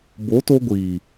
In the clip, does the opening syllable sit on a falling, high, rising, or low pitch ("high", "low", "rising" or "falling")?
rising